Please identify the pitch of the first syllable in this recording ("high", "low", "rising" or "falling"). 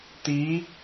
rising